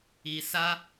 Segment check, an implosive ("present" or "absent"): absent